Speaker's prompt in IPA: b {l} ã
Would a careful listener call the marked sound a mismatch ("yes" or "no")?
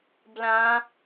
no